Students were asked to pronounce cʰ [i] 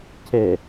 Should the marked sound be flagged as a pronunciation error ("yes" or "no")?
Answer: yes